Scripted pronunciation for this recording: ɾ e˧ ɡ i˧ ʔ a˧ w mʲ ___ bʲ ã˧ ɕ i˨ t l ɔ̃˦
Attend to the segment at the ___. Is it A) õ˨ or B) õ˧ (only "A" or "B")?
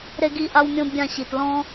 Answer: B